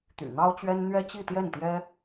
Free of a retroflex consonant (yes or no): yes